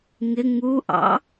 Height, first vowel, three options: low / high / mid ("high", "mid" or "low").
high